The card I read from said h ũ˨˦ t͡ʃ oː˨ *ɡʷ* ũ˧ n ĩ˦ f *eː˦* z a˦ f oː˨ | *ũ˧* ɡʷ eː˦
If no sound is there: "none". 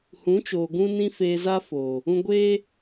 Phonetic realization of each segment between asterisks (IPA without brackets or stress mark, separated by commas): ɡ, eː˧, ũ˧